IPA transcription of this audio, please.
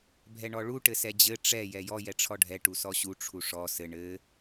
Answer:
bʱɛɳɔɭu ʈɘsɛd͡ʑɘ ʈ͡ʂɛ jɛjɔ jɛʈ͡ʂʰɔɖʱɛ ʈusɔɕu ʈ͡ʂʰuʂɔ sɘ ɳɘ

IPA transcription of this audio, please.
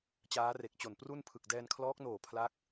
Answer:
t͡ɕaː˦˥re˨˩k̚t͡ɕo˨˩n pru˥˩npʰɯ˨˩k̚ dɛː˧nkʰlɔː˦˥k̚noː˨˩ pʰla˦˥k̚

